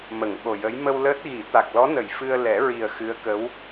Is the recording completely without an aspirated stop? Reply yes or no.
yes